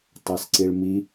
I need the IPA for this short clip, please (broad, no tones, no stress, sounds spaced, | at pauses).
tˤ ɛ s ǀ i ɭ m i